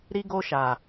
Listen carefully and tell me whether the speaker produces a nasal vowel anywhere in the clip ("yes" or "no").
no